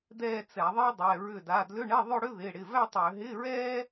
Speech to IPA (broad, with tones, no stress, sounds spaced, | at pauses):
d ɛː˥˧ t͡s ɛ˧˩˧ ðˤ i˥ dˤ ɛ˩˧˩ ɹ ʏ˧˩ d a˩˧˩ d l ʏ˧˥˧ ɳ ɛ˧˥˧ ðˤ ɵ˥˧ ɽ ʏ˥ ð ɪː˩˧˩ ɽ ɪ˩˧˩ v æ˥˧ tˤ ʏː˧˩˧ ɦ ɪː˧˥˧ ɹ ɛː˥